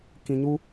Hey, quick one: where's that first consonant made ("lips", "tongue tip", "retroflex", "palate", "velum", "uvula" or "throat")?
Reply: velum